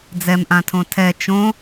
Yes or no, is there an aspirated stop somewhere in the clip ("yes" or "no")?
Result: yes